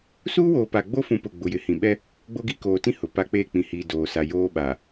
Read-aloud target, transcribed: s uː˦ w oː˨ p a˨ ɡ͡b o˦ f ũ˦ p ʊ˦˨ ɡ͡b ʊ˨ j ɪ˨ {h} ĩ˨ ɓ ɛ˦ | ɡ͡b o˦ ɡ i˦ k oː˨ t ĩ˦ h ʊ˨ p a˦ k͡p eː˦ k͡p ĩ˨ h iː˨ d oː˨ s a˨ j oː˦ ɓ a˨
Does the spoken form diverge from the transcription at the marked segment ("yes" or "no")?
no